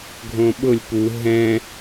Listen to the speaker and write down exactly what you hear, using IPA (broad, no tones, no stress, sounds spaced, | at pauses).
ɡʱ õ ɓ ʊ lʲ p u ɦ ɛ̃